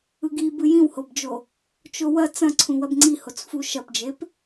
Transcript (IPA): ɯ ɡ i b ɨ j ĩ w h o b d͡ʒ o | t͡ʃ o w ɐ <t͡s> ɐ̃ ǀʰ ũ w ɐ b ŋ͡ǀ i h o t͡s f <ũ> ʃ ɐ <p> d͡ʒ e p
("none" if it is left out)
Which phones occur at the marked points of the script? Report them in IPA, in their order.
t͡s, u, p

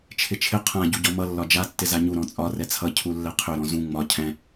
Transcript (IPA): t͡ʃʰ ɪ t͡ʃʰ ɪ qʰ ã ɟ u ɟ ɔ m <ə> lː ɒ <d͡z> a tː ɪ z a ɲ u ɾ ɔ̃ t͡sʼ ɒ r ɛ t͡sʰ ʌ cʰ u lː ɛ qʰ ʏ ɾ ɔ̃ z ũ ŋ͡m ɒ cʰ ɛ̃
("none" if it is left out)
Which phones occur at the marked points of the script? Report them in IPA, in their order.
ʌ, d͡ʒ

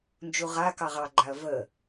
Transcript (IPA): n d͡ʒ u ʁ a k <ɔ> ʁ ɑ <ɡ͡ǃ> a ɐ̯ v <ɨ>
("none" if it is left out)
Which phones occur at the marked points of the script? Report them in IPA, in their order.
ɑ, ɡ͡ǃ, ə

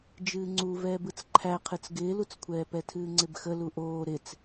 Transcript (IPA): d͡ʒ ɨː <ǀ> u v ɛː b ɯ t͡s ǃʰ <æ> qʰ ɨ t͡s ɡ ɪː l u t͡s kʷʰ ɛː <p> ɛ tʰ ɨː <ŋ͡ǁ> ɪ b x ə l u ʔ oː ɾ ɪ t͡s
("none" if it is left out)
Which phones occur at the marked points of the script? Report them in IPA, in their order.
ŋ͡ǀ, æ, p, ŋ͡ǀ

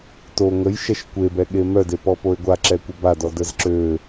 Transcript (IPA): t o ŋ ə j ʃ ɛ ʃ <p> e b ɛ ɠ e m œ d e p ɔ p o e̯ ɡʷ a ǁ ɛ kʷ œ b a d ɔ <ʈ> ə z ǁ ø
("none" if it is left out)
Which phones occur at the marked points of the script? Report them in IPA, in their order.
kʷ, d

